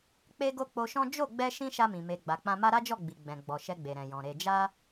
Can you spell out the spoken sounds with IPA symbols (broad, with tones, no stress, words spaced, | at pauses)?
k͡pe˦ɡo˦k͡po˧ʃɔ̃˦ d͡ʒo˦˨ɡ͡bɛ˧ ʃĩ˧ ʃa˧mĩ˨ me˨ ɡ͡ba˨k͡pã˧ma˦ ɾa˦d͡ʒɔ˦˨ ɡ͡bi˨ɡ͡bɛ̃˨ ɡ͡bɔ˨ ʃɛ˧ɡ͡be˨ɾɛ̃˨jɔ̃˨ ɾe˨d͡ʒa˧